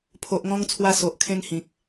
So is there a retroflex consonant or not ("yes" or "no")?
no